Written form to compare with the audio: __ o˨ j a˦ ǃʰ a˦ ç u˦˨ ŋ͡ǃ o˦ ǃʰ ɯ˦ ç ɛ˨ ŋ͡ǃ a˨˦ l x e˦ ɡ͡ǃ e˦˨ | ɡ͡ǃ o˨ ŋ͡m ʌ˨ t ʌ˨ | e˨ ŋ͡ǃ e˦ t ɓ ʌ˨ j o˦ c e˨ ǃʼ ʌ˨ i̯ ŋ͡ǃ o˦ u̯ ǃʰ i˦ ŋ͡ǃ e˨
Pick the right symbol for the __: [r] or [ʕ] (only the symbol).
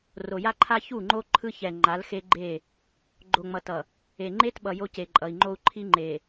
r